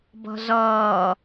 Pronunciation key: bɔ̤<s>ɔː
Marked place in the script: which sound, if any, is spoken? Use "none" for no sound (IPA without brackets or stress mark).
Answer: z